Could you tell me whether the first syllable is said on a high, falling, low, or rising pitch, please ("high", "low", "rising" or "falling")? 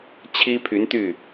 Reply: high